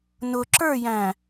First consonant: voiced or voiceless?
voiced